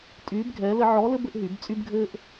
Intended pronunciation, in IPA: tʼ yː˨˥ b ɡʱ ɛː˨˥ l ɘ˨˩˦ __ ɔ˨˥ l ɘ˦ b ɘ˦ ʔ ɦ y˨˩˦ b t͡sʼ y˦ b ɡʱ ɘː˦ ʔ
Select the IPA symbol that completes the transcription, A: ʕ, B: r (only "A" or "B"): A